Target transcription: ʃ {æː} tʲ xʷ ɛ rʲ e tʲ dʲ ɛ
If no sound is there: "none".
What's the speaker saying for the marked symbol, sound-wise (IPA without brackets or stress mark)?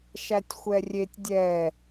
æ